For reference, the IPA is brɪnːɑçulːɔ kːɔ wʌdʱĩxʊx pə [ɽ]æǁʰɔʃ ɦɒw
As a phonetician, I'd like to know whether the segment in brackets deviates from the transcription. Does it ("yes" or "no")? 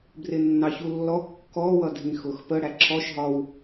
no